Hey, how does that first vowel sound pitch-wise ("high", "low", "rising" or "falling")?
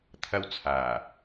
high